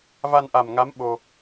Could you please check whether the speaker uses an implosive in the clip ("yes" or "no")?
yes